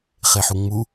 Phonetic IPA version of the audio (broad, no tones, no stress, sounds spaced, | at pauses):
χ e ħ u ŋ͡m u